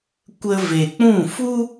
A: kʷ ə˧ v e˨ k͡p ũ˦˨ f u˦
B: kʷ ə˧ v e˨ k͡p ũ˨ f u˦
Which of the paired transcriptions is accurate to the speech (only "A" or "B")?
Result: A